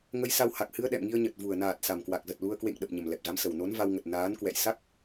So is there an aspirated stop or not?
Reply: no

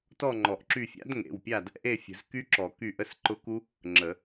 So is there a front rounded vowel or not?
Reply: yes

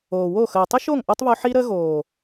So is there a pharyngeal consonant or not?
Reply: yes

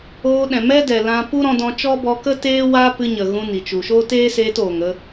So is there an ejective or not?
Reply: no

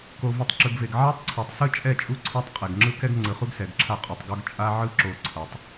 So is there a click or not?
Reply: yes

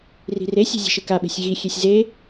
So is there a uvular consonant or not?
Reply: no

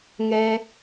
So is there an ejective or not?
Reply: no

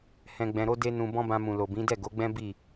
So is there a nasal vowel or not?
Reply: yes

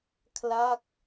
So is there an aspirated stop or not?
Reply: yes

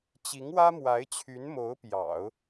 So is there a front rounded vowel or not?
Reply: yes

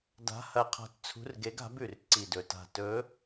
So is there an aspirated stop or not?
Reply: yes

